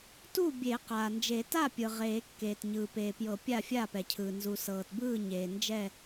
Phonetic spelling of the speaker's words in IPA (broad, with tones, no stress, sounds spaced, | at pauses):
t u˥˨ bʲ e˨˩˦ q aː˩ n d͡ʒ e˨˩˦ t a˥˨ pʲ ɯ˩ ʁ eː˨˩˦ kː eː˩ t ɲ ɯː˩ p eː˩ p j ɤ˨˩˦ pʲ a˥˨ fʲ a˥˨ p ɛ˩ cʰ ɯː˩ n z u˩ s ɤː˩ t b ɯː˥˨ ɲ eː˩ n d͡ʒ ɛ˥˨